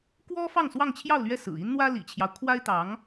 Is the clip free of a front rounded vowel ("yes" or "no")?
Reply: yes